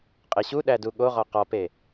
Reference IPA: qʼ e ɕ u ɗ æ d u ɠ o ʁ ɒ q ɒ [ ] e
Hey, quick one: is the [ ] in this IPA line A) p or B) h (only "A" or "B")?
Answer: A